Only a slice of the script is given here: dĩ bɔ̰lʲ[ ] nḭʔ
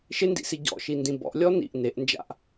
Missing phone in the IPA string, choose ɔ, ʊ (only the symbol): ɔ